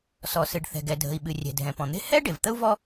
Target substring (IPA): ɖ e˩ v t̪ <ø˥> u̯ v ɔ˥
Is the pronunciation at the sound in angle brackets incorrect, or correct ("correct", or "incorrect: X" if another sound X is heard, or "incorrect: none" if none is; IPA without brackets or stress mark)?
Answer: incorrect: ə˥